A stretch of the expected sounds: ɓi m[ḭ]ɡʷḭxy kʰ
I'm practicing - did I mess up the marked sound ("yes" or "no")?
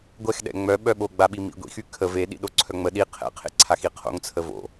no